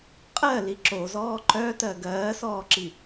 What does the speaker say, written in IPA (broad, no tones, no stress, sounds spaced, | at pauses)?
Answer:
qʼ ɜ l i ǁ o z ɔː ǃ œ t ɜ ɡ ɜː s ɔː ǁ i